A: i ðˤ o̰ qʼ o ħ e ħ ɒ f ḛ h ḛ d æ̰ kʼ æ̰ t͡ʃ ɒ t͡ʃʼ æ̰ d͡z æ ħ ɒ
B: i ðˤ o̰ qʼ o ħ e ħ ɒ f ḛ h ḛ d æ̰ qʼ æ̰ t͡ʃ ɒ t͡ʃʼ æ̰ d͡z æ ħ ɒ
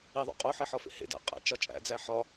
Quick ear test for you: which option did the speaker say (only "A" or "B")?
B